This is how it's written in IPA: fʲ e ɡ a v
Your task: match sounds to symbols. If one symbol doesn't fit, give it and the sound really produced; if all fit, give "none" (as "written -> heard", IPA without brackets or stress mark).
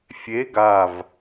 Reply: none